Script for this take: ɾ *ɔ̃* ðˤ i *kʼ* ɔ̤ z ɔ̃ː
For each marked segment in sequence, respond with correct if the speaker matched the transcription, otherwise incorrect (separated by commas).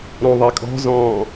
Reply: correct, correct